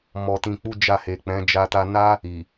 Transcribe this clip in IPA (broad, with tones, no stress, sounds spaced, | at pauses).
m ɔ˧ t ĩ˧ k͡p u˦ d͡ʒ a˦˨ h e˨ k͡p ɛ̃˨˦ d͡ʒ a˦ t a˧ n a˦ | i˨